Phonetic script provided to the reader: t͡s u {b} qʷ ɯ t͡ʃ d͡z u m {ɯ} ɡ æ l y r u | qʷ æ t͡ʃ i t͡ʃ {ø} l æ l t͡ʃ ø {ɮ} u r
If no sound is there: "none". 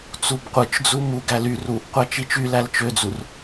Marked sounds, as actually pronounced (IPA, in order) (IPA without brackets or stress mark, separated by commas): b, u, y, d͡z